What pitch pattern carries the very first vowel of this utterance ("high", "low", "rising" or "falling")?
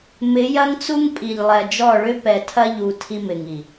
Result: rising